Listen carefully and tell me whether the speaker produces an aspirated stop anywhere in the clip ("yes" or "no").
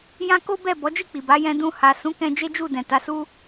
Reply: no